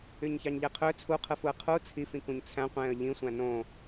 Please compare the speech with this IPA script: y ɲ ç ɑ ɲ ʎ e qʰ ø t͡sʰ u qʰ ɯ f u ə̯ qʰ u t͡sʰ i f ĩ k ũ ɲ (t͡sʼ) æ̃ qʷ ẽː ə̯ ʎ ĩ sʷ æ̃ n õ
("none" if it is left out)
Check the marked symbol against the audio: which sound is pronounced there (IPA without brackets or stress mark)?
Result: t͡sʰ